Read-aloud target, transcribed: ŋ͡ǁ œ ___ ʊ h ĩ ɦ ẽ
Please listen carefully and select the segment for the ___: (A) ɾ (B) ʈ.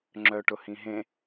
B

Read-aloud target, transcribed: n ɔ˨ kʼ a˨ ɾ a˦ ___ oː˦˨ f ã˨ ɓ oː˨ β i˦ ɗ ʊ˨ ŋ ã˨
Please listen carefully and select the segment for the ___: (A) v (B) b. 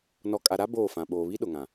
B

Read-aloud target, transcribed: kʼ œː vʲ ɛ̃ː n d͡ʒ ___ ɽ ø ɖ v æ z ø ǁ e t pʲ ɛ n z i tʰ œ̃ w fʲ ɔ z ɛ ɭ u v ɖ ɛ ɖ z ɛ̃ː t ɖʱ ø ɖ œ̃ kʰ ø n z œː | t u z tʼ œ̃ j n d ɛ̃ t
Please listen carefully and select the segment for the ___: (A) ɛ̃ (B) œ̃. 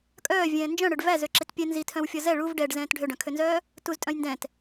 B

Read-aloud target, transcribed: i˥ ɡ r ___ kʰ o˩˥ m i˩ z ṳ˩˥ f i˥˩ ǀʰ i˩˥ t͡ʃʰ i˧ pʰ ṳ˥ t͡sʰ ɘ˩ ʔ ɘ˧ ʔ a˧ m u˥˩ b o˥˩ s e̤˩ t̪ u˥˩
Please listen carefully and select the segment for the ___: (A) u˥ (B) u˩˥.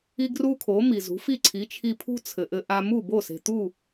A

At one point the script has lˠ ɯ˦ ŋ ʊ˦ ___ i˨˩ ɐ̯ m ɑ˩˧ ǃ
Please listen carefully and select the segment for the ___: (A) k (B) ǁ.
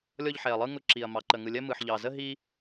B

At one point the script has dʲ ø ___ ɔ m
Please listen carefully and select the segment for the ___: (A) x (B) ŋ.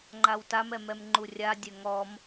B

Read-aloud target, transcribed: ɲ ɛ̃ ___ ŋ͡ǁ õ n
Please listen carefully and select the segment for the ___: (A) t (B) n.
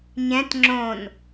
A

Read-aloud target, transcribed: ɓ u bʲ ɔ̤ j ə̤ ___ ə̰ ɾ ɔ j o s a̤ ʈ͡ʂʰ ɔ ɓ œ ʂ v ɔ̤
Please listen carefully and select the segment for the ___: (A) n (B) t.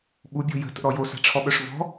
B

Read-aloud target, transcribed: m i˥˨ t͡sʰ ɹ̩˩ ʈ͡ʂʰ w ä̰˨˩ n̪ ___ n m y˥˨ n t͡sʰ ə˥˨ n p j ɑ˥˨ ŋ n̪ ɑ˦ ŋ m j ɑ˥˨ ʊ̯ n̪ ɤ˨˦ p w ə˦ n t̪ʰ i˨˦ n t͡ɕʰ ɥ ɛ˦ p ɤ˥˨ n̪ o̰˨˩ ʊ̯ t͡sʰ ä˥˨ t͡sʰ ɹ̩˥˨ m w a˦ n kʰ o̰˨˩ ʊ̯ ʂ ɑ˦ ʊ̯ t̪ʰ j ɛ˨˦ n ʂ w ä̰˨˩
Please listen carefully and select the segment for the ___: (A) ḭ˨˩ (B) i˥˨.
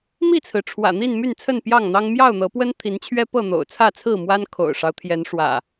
B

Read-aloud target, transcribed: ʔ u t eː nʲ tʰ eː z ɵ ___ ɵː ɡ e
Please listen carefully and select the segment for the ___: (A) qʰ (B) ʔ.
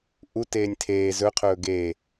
A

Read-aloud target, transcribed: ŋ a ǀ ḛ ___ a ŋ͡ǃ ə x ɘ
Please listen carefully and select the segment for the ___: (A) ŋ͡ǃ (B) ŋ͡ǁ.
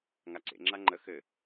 B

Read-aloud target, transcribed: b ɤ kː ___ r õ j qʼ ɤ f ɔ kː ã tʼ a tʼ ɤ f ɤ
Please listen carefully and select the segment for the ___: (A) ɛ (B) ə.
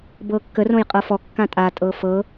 B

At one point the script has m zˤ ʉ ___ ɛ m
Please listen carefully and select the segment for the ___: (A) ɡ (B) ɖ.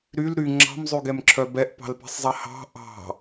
A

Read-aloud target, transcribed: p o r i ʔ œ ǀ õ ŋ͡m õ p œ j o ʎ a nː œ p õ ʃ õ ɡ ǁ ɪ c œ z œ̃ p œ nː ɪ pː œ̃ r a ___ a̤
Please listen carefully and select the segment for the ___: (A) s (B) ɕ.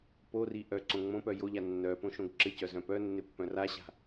B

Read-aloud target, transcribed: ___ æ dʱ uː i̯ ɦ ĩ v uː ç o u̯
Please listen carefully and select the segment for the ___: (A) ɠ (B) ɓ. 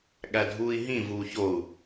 A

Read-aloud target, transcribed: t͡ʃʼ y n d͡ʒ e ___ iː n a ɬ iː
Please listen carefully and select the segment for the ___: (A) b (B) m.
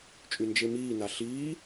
B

